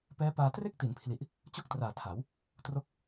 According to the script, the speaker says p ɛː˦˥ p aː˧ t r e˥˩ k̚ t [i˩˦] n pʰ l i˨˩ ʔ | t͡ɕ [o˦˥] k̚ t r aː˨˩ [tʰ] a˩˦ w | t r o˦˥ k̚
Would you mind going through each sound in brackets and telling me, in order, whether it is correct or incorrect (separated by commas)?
correct, incorrect, correct